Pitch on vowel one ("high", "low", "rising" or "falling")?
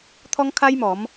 high